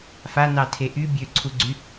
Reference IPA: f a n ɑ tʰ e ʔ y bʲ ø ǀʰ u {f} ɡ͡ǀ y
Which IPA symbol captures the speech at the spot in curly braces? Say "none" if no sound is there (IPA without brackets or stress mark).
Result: none